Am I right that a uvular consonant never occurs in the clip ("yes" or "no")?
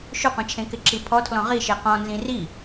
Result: no